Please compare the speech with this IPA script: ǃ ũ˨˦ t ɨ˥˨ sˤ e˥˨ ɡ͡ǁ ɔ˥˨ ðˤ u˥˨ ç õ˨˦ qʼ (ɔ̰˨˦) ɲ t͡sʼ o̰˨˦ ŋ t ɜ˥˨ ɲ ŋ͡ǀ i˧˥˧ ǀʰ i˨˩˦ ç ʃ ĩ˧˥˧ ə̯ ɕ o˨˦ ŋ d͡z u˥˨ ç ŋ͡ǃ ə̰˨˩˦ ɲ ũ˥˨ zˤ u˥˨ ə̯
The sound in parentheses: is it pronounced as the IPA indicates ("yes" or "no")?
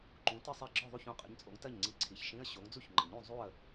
no